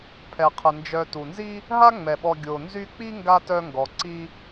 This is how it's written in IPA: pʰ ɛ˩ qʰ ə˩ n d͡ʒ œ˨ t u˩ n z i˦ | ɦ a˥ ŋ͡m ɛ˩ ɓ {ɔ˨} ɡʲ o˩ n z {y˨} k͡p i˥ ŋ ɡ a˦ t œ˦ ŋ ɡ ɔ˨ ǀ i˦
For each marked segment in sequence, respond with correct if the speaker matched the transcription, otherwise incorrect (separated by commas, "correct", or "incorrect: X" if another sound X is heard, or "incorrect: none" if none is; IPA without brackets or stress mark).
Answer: correct, incorrect: y˦